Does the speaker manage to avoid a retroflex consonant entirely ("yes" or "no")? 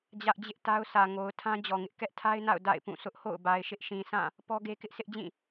yes